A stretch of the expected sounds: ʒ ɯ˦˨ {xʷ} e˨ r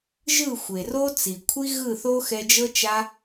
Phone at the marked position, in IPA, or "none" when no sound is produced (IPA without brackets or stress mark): xʷ